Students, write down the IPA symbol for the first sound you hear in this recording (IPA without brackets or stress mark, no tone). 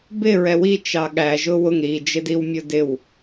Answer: b